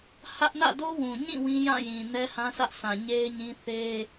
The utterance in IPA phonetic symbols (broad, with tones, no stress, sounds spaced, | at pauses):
h ä˦ ʔ n ä̰˦˨ d o˦ w ũ˨ ɲ ĩ˦˨ w ĩ˦ j ã˦˨ j ĩ˨ n ɛ˦ h ã˦ sʰ ä˦ ʔ s ã˨ ɲ e˦ ɪ̯ ɲ ĩ˦ θ e˦